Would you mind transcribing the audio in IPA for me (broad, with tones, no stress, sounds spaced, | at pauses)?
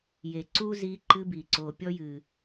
j e˨ ǀ u˦ z i˧ ǃ ɨ˧ b i˨ ǀ o˨ pʲ ɔ˧ j ɨ˨